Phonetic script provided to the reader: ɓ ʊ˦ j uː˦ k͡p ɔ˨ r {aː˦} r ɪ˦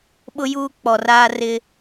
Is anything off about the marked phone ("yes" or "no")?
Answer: no